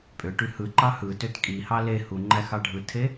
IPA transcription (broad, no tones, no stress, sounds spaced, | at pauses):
pʼ ø ʈ y h ɯ ǃ ɑ h ɯ t ø t kʼ i h ɑ l e h u ŋ͡ǃ æ x ɑ ɖʱ ɯ tʰ e